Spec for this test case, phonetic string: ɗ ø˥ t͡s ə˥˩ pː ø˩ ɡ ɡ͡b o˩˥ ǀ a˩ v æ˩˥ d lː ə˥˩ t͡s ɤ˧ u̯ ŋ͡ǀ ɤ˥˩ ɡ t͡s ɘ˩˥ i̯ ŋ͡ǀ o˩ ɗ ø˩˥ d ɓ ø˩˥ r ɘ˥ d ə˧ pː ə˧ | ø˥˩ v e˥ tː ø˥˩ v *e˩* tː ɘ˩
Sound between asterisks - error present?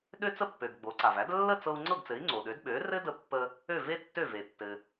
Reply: no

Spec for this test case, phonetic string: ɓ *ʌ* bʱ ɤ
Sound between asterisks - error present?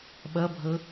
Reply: no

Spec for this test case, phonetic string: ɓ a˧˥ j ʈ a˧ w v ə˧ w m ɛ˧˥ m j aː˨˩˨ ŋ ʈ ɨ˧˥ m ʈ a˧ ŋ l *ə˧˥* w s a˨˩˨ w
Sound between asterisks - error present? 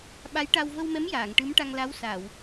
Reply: yes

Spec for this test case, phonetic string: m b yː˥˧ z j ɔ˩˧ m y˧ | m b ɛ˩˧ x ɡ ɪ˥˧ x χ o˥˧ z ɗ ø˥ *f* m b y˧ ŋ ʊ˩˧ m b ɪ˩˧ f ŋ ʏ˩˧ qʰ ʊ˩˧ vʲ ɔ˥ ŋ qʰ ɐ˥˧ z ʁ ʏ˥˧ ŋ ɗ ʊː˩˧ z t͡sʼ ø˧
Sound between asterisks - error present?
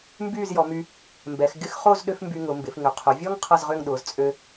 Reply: no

